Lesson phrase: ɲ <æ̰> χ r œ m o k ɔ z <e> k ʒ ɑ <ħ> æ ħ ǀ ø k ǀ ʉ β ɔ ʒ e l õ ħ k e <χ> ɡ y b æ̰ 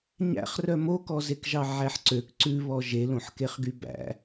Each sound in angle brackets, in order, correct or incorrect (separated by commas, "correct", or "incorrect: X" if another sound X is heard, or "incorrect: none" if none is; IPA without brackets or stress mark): correct, correct, incorrect: ʕ, correct